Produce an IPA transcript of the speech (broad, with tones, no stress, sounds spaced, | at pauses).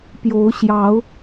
p j o˨˦ ʊ̯ ɕ j ɑ˨˦ ʊ̯